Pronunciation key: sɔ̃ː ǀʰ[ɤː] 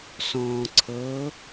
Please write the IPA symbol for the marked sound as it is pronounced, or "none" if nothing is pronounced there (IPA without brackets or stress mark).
ɤː